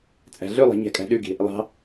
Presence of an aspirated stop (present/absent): absent